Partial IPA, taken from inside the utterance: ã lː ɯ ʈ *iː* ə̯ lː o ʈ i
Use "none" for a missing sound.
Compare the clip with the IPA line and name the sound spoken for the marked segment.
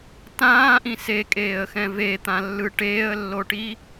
eː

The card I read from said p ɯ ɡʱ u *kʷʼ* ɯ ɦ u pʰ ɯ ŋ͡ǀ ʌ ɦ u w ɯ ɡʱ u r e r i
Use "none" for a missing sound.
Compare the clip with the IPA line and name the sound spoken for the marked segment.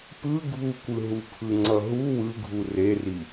kʷ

